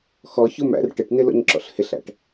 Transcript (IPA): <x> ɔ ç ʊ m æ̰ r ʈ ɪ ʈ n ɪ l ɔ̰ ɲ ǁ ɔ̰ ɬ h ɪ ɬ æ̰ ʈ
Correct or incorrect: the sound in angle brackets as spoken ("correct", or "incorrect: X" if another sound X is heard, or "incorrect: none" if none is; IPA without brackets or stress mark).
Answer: correct